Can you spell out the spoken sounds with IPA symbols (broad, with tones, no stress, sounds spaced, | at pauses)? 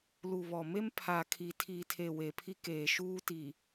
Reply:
l u˨ β ɔ˨ m e˦ m pʰ a˨ kʰ i˨ tʰ iː˨ tʰ e˨ w e˨ pʰ i˦ k eː˨ ʃ uː˦ t i˨